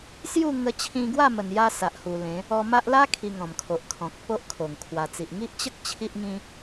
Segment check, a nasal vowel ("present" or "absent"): present